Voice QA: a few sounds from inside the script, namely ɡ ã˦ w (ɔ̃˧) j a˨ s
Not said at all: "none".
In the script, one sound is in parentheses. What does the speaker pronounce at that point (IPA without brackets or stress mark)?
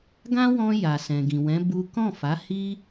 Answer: ɔ̃˧